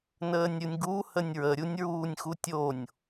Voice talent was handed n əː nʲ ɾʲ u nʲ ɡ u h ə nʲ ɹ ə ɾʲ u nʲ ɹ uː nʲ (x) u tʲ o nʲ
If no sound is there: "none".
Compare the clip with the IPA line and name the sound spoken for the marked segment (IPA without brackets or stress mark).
x